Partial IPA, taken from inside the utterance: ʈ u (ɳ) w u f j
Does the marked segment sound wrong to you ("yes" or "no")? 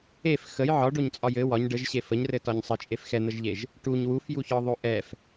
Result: yes